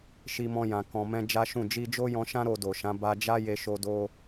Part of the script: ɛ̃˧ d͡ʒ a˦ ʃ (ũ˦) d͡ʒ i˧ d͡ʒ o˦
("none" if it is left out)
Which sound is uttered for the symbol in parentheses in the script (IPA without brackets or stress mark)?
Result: ũ˦˨